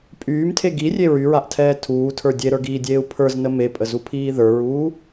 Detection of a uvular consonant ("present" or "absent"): absent